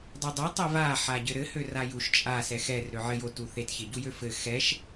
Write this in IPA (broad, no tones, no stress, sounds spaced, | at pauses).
dˤ u dˤ ɛ tˤ e v a ħ a ɟ ɘ ɾ ɘ h ø r a j u ʃ t͡ʃʼ a s ɛ x ɛ r ɾ ø ʕ ɘ j o t u θ e t ç e ɟ u j ø f ɘ x ɛ ʃ